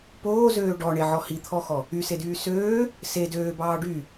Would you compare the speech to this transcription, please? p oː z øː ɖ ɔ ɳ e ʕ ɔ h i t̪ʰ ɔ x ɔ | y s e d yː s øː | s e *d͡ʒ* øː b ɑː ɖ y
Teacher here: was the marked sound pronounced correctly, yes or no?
no